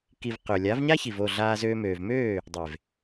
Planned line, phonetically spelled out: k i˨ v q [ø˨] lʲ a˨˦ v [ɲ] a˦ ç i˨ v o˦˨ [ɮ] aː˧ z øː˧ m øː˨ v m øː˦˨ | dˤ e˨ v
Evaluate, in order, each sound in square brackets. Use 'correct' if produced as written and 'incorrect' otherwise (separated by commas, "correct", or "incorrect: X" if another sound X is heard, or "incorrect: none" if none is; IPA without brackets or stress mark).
correct, correct, correct